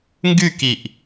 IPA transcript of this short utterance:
ŋ ɡ y k i ʔ

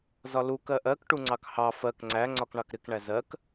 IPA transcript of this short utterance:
z ɒ l u k ɜ ʔ ɜ k ʈ u ŋ͡ǀ ɑ k h ɑ f ɜ k ŋ͡ǀ æ ŋ͡ǀ ɒ k ɳ ɑ k ɾ ɪ k ɳ æ z ɜ k

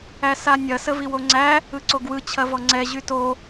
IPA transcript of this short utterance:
æ s a nʲ ɐ s ə v i w o ŋ͡ǀ æ | ɯ ǀ o ɡ w ɯ t͡ɕʰ ɐ v ɔ ŋ͡ǀ ɛ ʑ y t o

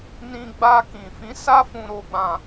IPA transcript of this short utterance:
n ĩ˧ ɡ͡b a˧ k ĩ˨ f ĩ˨˦ s a˦ f ũ˧ ɾ o˧ ɡ͡b ã˧

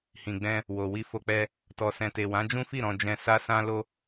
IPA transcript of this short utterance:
h ĩ˨ ɡ͡b ɛ̃˧ | w o˨ w i˧ f o˧ k͡p ɛ˧ | t ɔ˨ s ɛ̃˨ t e˨ w ã˨˦ d͡ʒ ũ˦ f i˦˨ ɾ ɔ̃˧ d͡ʒ ɛ̃˧ s a˦ s ã˦ l o˦

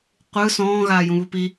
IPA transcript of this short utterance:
qʷ ɯ s ɔ̃ː ɣ aː j ũ β u p i

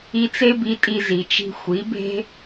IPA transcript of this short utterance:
i˧ t͡s e˥ b i˧ tʼ i˧ z i˩ t͡ʃ i̤˧ xʷ i˩˥ b e̤˥

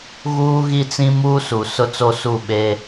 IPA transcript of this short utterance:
ɣ uː˦ ɣ i˦ t͡s ĩ˦ m uː˦ s u˨ s ʊ˦ t͡s o˦ s u˦˨ ɓ e˦

